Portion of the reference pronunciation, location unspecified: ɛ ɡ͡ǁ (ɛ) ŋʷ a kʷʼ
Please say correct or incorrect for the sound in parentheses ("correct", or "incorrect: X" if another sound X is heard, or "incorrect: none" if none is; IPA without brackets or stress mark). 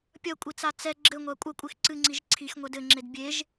incorrect: ɘ